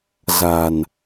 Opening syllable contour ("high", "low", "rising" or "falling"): low